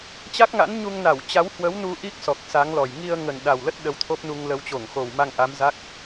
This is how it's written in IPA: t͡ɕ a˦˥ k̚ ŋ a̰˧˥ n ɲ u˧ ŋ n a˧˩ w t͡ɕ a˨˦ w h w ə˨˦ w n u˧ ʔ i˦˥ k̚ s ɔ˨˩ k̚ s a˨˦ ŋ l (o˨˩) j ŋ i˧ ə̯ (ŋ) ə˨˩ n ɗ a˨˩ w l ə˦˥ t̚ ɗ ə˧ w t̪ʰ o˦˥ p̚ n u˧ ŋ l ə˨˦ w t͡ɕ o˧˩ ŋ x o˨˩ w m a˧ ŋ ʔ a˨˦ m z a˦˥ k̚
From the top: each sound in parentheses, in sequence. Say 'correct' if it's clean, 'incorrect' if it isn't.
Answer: incorrect: ɔ˨˩, correct

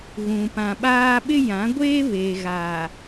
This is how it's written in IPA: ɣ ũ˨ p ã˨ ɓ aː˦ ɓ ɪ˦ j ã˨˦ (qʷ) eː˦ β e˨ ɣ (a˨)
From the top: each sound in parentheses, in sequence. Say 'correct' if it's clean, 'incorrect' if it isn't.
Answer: incorrect: ɡʷ, correct

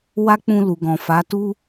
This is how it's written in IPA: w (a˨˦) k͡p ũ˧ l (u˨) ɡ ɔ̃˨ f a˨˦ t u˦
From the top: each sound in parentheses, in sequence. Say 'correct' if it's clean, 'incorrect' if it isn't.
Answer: incorrect: a˦, correct

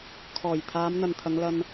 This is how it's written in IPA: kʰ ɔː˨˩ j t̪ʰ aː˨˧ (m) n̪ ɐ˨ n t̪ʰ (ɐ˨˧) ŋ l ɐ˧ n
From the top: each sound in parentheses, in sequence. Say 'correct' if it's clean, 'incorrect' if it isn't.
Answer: correct, correct

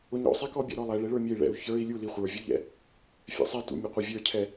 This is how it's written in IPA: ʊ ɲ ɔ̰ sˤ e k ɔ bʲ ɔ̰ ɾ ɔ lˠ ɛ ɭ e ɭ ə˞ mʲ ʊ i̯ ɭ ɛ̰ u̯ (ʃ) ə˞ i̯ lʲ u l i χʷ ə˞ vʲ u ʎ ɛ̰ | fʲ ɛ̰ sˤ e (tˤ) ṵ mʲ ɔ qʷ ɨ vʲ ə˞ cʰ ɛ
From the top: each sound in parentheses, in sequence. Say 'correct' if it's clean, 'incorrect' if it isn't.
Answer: incorrect: ç, incorrect: t

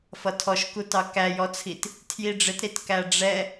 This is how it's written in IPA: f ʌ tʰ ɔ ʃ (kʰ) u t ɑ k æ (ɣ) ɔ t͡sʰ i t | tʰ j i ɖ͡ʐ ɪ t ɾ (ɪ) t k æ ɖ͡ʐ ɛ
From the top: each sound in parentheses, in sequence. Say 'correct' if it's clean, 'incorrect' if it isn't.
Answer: incorrect: k, incorrect: j, incorrect: i

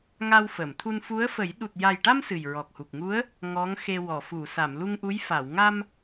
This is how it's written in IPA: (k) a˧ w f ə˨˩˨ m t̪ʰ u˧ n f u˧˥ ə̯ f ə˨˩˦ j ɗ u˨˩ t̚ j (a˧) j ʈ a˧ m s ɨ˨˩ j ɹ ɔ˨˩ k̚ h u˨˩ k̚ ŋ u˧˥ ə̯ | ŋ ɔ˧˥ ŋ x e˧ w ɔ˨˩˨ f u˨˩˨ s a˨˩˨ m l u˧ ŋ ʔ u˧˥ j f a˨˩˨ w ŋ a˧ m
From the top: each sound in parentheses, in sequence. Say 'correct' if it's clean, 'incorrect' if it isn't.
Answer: incorrect: ŋ, incorrect: a˨˩

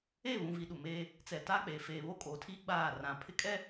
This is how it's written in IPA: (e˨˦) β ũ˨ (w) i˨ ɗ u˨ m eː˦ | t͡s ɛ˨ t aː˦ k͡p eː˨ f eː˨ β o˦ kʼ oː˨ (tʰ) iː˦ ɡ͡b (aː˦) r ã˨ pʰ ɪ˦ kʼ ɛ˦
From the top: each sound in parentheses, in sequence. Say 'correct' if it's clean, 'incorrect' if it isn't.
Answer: incorrect: e˦˨, incorrect: v, correct, incorrect: aː˦˨

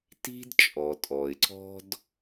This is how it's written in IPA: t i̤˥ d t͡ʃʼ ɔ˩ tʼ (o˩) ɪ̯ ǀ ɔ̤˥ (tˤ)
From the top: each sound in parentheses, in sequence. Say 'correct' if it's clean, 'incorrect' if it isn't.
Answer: incorrect: ɔ˩, incorrect: d

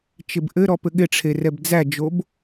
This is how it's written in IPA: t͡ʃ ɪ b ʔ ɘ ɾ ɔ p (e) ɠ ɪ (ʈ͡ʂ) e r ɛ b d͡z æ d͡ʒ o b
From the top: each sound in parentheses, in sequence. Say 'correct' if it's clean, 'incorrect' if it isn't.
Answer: incorrect: ɘ, incorrect: ʈ͡ʂʰ

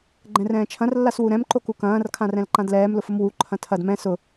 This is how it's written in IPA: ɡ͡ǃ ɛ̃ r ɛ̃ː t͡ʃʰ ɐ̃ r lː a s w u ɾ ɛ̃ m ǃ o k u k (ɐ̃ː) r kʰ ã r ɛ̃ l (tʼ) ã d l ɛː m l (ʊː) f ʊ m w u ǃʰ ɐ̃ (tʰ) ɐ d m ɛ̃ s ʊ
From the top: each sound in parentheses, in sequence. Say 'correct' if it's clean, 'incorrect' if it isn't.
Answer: correct, incorrect: ǃ, incorrect: ʊ, correct

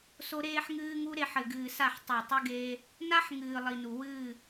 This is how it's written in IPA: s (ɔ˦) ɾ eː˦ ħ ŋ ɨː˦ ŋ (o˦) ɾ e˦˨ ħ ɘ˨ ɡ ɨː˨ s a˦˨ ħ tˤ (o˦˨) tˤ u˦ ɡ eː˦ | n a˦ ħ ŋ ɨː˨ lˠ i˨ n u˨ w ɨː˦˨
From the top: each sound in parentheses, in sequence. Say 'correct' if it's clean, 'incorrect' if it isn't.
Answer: incorrect: o˦, incorrect: u˦, correct

